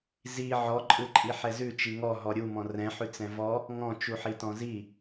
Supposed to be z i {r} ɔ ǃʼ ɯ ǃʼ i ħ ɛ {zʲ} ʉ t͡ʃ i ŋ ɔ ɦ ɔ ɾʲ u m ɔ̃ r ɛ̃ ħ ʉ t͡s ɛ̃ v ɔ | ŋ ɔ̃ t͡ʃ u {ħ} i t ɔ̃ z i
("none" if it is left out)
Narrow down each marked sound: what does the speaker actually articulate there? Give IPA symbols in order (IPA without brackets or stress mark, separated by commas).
ʕ, z, ħ